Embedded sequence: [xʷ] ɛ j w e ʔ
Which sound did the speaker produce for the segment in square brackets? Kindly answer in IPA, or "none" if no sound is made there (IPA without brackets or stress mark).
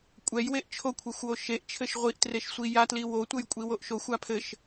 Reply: kʷʼ